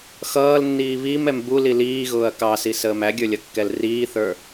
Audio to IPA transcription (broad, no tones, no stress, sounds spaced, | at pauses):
x ʌː l nː iː β i m ɛ m b u l i l iː ɣ ʊː ɐ̯ k ɑ s i s əː m æ ɡʲ ə˞ lʲ ʌ kː ɛ l r iː θ ə˞